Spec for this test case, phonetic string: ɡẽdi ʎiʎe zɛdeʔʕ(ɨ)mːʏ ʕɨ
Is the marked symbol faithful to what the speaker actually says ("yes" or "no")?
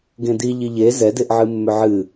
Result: yes